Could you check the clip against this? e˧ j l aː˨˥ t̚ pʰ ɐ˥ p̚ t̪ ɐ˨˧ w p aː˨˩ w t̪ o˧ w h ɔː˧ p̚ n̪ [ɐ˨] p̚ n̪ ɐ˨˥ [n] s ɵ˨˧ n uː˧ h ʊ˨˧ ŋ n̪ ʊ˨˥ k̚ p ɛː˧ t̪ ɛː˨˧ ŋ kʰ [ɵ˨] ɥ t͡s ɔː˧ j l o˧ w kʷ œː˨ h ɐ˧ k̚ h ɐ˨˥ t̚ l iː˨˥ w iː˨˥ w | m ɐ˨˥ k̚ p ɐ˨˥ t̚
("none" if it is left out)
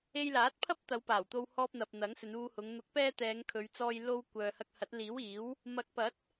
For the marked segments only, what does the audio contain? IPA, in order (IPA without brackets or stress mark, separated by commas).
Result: ɐ˨, ŋ, ɵ˨˧